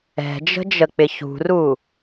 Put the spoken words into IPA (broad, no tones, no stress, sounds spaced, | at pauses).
ɛ̤ d͡ʒ ə̤ d͡ʒ ə k͡p ɪ ç ṳ r u